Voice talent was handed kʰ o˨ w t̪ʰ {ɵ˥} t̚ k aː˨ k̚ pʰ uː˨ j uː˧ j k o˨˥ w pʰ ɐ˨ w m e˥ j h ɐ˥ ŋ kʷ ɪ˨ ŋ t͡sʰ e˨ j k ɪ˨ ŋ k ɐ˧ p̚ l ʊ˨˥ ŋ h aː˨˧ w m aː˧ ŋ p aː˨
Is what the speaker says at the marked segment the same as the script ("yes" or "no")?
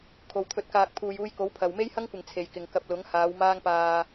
no